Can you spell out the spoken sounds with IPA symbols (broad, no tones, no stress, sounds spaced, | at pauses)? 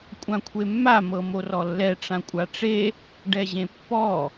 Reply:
kʷʼ ã kʷʰ e mː a m ɤ m o r ɔ lː ɛ ʈ͡ʂ ã kʷʼ a ʈ͡ʂ e | ɖ ɛ ʑ ẽ pː ɔ